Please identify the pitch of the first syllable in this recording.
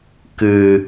low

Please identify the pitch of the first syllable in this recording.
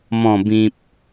low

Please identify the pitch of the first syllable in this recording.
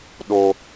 high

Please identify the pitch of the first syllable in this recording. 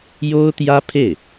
high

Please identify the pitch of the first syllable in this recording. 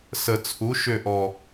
low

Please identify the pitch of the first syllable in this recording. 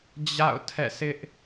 falling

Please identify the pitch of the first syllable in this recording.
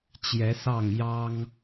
rising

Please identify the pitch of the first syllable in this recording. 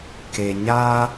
low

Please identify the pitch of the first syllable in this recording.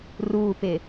low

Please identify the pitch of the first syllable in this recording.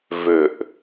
low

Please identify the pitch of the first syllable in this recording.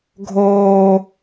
high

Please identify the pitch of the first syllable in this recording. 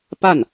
falling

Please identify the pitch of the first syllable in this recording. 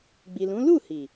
low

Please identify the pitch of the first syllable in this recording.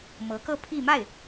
rising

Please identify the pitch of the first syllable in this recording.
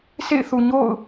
falling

